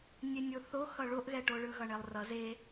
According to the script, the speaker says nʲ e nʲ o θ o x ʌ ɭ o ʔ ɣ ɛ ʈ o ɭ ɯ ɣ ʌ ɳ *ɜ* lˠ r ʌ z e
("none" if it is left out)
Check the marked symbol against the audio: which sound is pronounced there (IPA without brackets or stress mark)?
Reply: ɛ